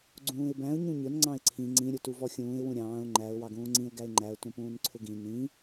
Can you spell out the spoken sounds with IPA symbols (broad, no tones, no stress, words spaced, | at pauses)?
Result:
ɡ͡ǀũːɪ̯bæ̃ʊ̯ ɲũɲʊn ŋ͡ǀɑ̃ɪ̯ǀʰĩ ŋ͡ǀĩ ɾʲʊtuvɔxʲũːɪ̯ wũɾʲɑ̃ːʊ̯ ŋ͡ǃæʊ̯ wɑɡũːŋ͡ǀĩʊ̯ ɡæɪ̯ŋ͡ǃæʊ̯ tũpũːnǀʰʊɡĩ nĩ